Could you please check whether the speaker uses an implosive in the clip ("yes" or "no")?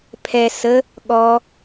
yes